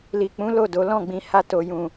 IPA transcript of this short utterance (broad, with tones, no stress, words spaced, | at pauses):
li˨k͡pũ˨˦ lo˦˨do˨˦ lɔ̃˦˨ɡ͡bĩ˧ ha˧to˨jũ˨